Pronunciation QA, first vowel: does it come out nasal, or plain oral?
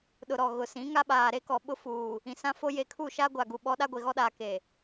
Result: oral